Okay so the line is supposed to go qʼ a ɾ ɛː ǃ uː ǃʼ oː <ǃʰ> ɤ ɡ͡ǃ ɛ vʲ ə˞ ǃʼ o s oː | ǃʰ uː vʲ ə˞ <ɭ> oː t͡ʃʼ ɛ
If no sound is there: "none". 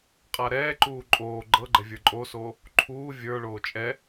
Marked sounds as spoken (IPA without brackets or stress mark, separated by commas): ɡ͡ǃ, ɭ